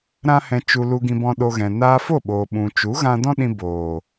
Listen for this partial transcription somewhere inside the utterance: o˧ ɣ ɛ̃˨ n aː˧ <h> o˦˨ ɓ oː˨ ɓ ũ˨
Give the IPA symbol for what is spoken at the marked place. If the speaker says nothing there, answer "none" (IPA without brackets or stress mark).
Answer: f